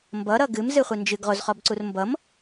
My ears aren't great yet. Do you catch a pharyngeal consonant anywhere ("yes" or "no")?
no